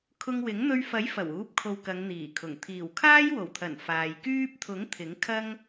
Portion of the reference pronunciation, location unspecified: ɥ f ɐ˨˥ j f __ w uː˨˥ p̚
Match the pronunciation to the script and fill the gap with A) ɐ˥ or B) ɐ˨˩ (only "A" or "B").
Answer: B